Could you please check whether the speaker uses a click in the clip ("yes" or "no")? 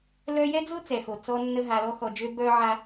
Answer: no